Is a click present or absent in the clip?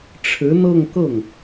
absent